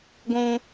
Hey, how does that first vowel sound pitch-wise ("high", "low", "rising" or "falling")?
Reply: high